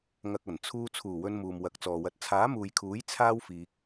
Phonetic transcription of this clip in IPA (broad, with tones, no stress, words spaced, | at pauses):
ŋɐ˨k̚ɐ˨˩n t͡sʰuː˧ t͡sʰuː˨˩wɵ˧n muː˨mwɐ˨˥k̚t͡sɔː˨wɐ˧t̚ t͡sʰaː˨˥muː˨jkʰuː˨˥j t͡sʰaː˥wfiː˧k̚